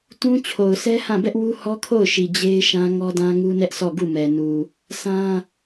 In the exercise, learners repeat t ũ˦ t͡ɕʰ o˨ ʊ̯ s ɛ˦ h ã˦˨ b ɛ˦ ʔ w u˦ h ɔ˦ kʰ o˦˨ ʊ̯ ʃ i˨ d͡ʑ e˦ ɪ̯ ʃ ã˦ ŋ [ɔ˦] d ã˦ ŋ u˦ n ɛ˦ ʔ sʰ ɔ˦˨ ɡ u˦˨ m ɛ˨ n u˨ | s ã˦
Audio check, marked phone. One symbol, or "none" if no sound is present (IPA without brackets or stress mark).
ɔ˦